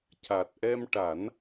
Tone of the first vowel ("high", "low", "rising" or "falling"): low